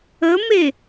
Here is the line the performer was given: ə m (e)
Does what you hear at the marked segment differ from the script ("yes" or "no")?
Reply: no